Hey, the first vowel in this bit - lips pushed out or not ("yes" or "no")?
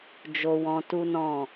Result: yes